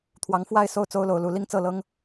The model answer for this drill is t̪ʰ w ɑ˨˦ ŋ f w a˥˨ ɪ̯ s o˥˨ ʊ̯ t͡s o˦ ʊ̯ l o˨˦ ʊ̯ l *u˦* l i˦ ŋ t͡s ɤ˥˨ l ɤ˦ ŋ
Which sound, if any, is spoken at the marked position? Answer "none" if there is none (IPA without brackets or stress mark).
u˨˦